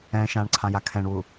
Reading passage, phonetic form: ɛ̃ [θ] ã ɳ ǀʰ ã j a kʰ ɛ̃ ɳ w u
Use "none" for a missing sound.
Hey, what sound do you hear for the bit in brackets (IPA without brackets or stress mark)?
ʃ